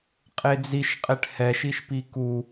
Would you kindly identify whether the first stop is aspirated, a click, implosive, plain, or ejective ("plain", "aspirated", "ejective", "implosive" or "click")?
ejective